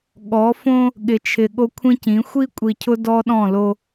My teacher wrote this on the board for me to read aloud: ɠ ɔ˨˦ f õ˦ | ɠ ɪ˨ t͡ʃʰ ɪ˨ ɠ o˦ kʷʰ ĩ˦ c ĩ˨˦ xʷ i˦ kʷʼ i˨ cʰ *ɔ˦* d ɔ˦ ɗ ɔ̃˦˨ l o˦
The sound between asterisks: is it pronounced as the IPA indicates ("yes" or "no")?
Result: no